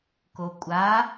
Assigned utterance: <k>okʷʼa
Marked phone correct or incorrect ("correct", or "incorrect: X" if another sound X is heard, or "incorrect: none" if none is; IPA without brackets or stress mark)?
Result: correct